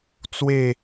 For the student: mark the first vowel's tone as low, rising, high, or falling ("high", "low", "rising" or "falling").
falling